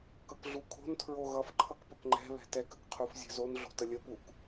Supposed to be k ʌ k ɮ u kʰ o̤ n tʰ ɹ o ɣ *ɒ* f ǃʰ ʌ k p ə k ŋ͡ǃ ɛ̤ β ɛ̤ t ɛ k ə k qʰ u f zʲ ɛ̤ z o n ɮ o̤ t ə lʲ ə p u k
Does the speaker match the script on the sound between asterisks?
no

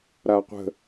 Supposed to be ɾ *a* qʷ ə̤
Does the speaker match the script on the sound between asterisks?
yes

